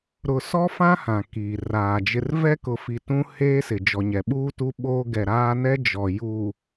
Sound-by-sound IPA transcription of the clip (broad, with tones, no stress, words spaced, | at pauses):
ɾʊ˨sɔ˦fã˦ hã˨kiː˨raː˨d͡ʒɪ˦r vɛ˦kʊ˨fi˨ tũ˦ heː˦sɪ˨ d͡ʒɔ˨ɲɛ˨ɓuː˦tu˦ ɓoː˦ ɡɛ˨ɾaː˦nɛ˦ d͡ʒɔ˨ juː˨